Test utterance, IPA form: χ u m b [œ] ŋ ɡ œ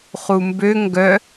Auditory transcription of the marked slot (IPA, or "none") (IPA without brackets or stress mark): ø